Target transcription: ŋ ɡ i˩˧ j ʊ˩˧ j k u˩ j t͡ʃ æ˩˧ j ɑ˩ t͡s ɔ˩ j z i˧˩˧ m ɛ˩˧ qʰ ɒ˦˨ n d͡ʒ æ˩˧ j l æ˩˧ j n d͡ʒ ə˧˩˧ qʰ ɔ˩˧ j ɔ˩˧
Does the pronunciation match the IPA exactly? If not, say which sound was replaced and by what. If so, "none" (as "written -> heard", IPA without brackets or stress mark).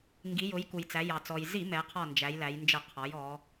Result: t͡ʃ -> t͡s